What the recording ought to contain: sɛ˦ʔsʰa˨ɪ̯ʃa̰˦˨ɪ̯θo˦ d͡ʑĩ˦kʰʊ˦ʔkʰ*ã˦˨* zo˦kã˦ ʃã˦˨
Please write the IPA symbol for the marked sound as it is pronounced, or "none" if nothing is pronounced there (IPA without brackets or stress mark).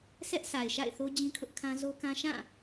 ã˦